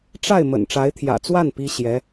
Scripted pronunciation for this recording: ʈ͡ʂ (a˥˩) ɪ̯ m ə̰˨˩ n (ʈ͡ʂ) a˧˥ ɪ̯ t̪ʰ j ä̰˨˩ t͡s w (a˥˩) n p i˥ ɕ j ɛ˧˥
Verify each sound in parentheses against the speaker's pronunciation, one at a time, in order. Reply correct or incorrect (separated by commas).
correct, correct, correct